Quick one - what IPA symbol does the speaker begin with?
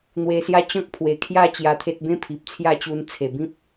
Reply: n̪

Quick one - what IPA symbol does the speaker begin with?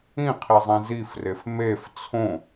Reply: ĩ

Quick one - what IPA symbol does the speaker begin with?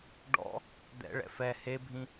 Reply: ɖ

